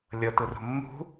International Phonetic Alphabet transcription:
lʲ ɤ t ɯ r o̤ mː ṳ

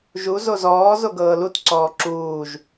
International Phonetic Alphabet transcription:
ʒ u z o z ɔː z o ɡ ɤː l u t ǀ ɔː ǁ uː ʒ

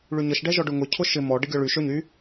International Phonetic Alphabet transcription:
ɭ y ɲ ə ʃ ɖ ɛ ʒ ɔ ɖ ʊ ŋ ʊ cʰ ʊ ʃ ɪ m ɔ ɖ ə ɡʲ ɔ ɭ y ʃ ø ɲ y

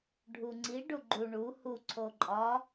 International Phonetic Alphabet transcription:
ɖʱ u ŋ͡ǀ i ɖ u ɡ͡ǃ u ɳ u h u ǀʰ o ǃʼ ɒ

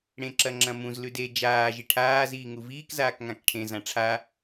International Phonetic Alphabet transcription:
ɽ ẽ ǁ ɐ ŋ͡ǁ ɐ̃ m ũ z l ʉ d e d͡ʒ aː ʒ i ʈʰ aː z iː ŋ u v iː k z aː k ŋ ã k ʈʰ ẽ z ã ʈ͡ʂʰ a

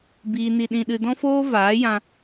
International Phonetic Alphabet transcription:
b iː˨ n i˨ ɗ ĩ˨ ɗ ɨ˨ d ɔ̃˦ f oː˦ v aː˨˦ j ã˧

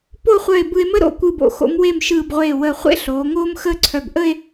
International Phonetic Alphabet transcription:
p o˥˧ χʷ œ˧˩ e̯ b ɯ˧ e̯ m ə˥ ɾ o̰˧˩ kʷ ɯ˧˩ b o̰˩˧ x o̰˩˧ m w e˧˩ m ʃ ɯː˧˩ b ʁʷ eː˧˩ w əː˧˩ χʷ ḛ˥ ɬ oː˩˧ ŋ oː˥ m x əː˥ ǀʰ œ˧˩ b ʔ ə˥˧ e̯

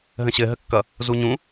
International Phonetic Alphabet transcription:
ɦ ə̃ ɕ ɘ ɦ ə kː ʌ | z u ɲ ũ

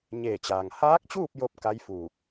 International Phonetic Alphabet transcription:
ɲ eː˧˩ t͡ɕ aː˩ ŋ h aː˧˥ k̚ t͡ɕ uː˥˨ p̚ j o˥˨ p̚ k a˧˥ j f uː˧˩ k̚

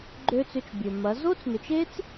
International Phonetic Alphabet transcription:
ɡ͡ǃ ø˦ t͡s ʏ˧ t͡ʃ bʲ ø˨ m ɐ˨˦ z o˦ t͡s n ʏ˨ t͡ʃ e˦ t͡s

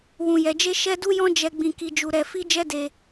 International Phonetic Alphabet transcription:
w ũ˧ j ɛ˧ d͡ʒ e˦ ʃ ɛ˦ d u˦ j ɔ̃˦ d͡ʒ ɛ˦ ɡ͡b ĩ˧ k i˧ d͡ʒ u˧ ɾ ɛ˧ f i˦ d͡ʒ ɛ˦ d e˧

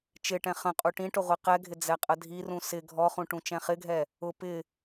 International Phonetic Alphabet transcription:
t͡ʃ ɪ ʈ ɛ̃ χ ə̃ qʼ u ʈ ĩ ʈ ʊ ʁʷ i q ɛ ɡʱ ɪ d͡z ɛ qʼ ə dʱ i r ũ s ɪ ɡʱ ɔ χ ũ ʈ ũ t͡ʃ ɛ̃ χ ɪ ɡʱ ɛ | ʊ p ɪ

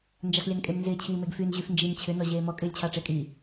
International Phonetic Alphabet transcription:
n d͡ʒ a x lʲ a n kʼ e m n z ɪː t͡ɕʰ iː m e ɡ f y n ʑ y f n d͡ʒ i m t͡ɕʰ ʏ n ɔ ʑ eː m ɔ kʼ ɪː lʲ t͡ɕʰ ɑ ʈ͡ʂ ɪː kʼ i

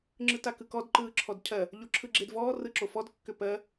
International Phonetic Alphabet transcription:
ŋ͡ǁ ɯ t a k ɯ k ɔ d ǃ ɯː ǁʰ ɔ d cʰ ɜ | ʎ o ǁʰ ɯ ɡ͡ǁ e d v ɔː r ɯ ǁ o f ɔ d kː ʏ p ɜ

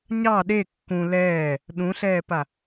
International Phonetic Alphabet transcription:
ɲ ɑ ɗ e kː ũ l ɛː | ɗ ũ ɬ ɛː p a

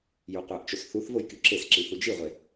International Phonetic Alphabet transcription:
j u qʷ æ ʔ t͡ʃ o s θ u θ v o j k y ǁ e s ǁ i θ u d͡ʒ i ʁʷ e

